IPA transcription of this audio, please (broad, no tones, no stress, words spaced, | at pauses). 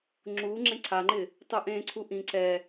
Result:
ŋ͡ǁu ŋ͡ǁẽǀʰaŋ͡ǃɪ | tˤuʔẽ ǀʰuʔĩ ǀɛ